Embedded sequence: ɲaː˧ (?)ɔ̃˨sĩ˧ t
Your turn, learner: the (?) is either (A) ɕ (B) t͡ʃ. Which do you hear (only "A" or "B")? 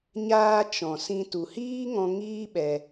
B